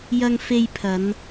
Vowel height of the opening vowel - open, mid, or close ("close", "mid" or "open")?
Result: open